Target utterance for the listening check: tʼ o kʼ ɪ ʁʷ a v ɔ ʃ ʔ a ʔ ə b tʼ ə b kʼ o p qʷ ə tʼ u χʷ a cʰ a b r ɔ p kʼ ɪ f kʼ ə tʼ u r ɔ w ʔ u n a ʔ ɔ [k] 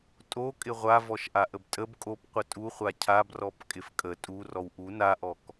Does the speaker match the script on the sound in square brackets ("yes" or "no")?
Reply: yes